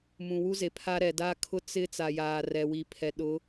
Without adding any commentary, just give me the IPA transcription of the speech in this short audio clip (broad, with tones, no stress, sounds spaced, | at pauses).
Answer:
m ũ˨ w u˦ z e˨ pʰ a˦ ɾ ɛ˨ d a˦ kʰ ʊ˦ t͡s ɪ˦ t͡s a˨ j aː˨ r ɛ˨ w i˨ pʰ ɛ˨ ɗ ʊ˨˦